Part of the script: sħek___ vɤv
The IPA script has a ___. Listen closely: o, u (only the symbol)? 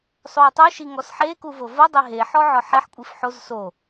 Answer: u